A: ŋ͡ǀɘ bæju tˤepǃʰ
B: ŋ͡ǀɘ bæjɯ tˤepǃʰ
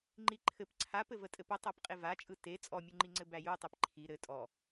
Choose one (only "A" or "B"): A